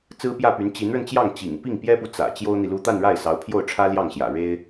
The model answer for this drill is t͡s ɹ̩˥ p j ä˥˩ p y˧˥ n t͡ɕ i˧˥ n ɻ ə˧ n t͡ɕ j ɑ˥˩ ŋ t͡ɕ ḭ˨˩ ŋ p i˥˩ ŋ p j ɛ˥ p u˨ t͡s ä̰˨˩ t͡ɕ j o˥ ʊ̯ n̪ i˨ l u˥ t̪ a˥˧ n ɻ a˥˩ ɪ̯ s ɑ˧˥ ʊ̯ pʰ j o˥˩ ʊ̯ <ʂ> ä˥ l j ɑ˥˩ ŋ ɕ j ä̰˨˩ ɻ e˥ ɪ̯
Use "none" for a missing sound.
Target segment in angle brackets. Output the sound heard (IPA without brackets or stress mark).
ʈ͡ʂʰ